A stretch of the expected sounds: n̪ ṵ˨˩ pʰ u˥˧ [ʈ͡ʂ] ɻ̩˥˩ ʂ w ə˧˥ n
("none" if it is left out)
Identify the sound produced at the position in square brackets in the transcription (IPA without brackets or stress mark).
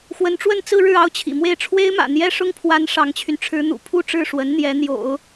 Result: ʈ͡ʂ